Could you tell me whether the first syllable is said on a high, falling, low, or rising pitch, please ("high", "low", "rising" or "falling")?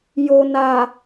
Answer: low